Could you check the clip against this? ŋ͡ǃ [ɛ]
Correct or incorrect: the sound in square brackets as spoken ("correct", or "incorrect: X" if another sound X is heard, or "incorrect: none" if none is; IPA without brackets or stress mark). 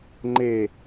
incorrect: e